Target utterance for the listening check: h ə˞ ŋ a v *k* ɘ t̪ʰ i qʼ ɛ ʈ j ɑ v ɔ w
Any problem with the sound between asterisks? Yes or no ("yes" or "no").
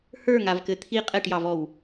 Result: no